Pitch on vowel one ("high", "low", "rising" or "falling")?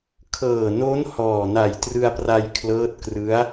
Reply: low